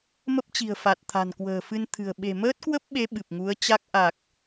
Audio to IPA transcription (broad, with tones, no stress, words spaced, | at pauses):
mə˦˥p̚t͡ɕi̤˨˩ə̯fa˨˩t̚ t̪ʰa̤˨˩nkwə̤ː˨˩fɨ˧nt̪ʰɨ̤˨˩ə̯ ɓe̤˨˩məː˦˥t̚kwə˦˥p̚ɓe˨˦ ɓɨ˨˩p̚ŋu˨˦ə̯t͡ɕa˦˥k̚ ʔa˨˩k̚